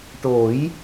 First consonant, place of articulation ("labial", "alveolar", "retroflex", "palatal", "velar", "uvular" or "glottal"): retroflex